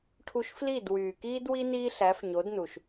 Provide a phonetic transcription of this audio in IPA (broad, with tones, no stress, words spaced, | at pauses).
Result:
ʈʰu˧ʃfli˦˨d wyː˨kiː˦dwi˦ niː˦ɬæ˨˦fɲo˨˦d nu˨ʃ